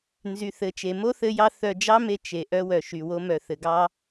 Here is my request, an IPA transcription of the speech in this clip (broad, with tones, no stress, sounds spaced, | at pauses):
n z y˨ θ ɘ˨ t͡ʃ e˨ m o˦ θ ɘ˧ j ɑ˧ θ œ˨ d͡ʒ ɑ˦ m e˧ t͡ʃ e˨ ʔ œ˧ w œ˨ ʃ y˨ w o˧ m œ˨ θ ɘ˨ ɡ ɑ˦